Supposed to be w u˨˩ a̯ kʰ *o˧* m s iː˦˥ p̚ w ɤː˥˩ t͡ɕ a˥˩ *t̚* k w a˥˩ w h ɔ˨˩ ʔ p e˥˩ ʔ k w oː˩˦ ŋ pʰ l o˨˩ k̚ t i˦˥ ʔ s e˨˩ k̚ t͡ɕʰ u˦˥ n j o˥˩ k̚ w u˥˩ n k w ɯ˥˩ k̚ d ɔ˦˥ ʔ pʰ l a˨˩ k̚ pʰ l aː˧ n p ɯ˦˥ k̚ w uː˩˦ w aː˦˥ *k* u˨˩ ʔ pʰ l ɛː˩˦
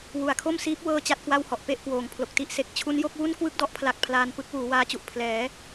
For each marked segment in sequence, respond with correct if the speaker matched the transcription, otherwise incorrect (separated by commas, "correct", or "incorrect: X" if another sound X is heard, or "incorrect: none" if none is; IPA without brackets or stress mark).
incorrect: o˥˩, correct, incorrect: t͡ɕ